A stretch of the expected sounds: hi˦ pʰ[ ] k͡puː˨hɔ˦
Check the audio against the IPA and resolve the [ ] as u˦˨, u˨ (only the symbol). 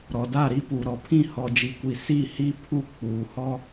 u˦˨